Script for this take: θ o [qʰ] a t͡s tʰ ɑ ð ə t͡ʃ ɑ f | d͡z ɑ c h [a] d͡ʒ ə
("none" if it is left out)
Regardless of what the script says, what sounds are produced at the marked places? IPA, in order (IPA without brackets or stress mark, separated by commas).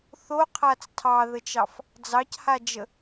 qʰ, a